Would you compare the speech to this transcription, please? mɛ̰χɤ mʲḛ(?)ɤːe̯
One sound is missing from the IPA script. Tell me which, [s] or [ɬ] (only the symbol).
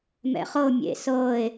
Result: s